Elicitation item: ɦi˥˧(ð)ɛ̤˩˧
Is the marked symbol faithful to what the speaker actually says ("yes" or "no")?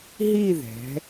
yes